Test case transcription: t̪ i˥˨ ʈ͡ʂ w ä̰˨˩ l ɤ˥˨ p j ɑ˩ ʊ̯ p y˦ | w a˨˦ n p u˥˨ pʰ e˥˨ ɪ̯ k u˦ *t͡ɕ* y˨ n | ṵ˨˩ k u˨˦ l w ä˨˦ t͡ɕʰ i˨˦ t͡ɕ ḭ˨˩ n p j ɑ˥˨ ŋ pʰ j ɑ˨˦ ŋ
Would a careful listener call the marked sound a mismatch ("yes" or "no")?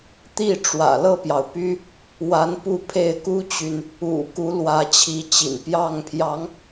no